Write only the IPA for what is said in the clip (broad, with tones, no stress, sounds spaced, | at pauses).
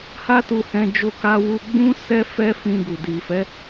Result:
h a˦ t u˧ h ɛ̃˧ d͡ʒ o˧ k a˧ w u˧ ɡ͡b ũ˦ s ɛ˦ f ɛ˦ f ĩ˧ ɡ u˨ d i˨ f ɛ˨˦